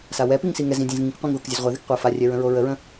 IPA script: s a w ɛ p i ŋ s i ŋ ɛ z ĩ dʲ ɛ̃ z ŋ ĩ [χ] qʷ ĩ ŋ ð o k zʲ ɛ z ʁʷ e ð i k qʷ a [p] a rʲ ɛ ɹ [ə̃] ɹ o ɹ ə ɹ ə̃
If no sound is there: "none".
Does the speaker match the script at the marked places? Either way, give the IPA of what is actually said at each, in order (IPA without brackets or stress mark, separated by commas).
k, f, ə̃